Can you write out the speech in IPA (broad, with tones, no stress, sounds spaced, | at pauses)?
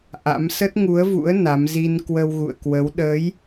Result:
ʔ a̰˧˥ m s ə˦˥ t̚ ŋ u˨˦ ə̯ v ṵ˧˥ ə̯ n a˨˦ m z i˧ n k w ə˧ w ɣ ṵ˧˨ ə̯ k w ə˨˦ w ɗ əː˨˦ j